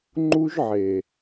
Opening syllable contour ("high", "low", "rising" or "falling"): high